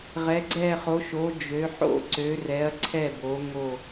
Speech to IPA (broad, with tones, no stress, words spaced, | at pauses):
ʁɛ˨˦ɡ͡ǀɛ˦˨χo˨˦ʃo˨˦ d͡ʒø˨˦ħo̰˦˨ ǀø˨˦rɛ˨˦ɐ̯ ǀʰɛ˦˨bo˨˦ ŋo˦˨